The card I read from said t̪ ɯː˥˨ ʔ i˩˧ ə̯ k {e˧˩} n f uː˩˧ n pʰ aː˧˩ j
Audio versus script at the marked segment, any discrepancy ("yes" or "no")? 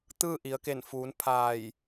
no